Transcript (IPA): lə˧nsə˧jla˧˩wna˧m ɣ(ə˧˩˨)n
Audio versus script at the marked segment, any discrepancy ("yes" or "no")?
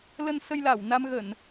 no